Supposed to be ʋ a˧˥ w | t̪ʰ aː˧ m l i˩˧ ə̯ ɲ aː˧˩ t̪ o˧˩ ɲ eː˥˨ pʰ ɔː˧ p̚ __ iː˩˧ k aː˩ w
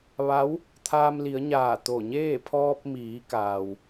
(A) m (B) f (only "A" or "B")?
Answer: A